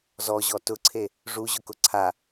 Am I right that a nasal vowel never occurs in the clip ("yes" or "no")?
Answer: yes